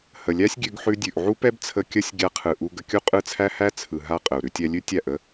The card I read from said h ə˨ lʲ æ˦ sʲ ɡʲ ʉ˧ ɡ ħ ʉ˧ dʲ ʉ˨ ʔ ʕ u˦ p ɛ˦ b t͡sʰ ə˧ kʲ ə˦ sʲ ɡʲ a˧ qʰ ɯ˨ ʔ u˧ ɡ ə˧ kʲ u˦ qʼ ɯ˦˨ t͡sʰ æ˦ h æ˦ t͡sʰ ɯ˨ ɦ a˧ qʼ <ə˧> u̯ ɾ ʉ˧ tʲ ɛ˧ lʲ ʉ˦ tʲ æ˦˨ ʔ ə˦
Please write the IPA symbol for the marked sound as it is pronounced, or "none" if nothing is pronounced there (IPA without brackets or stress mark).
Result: ə˨